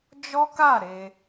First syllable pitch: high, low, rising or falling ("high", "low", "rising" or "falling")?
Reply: high